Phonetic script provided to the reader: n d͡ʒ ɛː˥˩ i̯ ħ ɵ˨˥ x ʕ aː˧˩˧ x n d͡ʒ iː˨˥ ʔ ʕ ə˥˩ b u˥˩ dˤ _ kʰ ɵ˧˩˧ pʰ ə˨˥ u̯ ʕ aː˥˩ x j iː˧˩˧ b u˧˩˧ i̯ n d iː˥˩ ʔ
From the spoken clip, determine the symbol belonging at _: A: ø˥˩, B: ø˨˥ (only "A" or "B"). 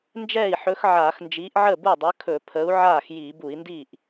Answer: B